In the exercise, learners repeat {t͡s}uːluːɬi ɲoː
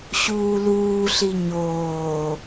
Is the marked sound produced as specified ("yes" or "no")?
no